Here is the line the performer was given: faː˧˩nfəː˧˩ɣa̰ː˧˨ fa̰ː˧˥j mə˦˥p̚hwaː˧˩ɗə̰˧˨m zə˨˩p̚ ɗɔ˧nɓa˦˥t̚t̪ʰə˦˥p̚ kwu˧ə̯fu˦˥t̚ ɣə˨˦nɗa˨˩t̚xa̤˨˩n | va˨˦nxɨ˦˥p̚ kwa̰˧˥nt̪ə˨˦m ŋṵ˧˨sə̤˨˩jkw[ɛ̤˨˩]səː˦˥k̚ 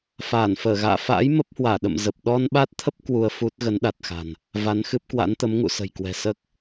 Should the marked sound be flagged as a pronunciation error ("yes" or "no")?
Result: no